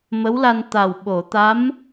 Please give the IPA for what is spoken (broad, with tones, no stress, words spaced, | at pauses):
mə˧˥wla˧n t̪a˨˩wɓo˨˩˨ t̪a˧˥m